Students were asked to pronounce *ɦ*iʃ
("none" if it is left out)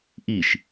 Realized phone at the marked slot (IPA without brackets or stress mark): ʔ